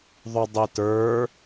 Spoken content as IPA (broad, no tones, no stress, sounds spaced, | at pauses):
ðˤ ʊ dˤ i t ə˞